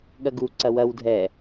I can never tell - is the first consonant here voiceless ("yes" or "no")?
no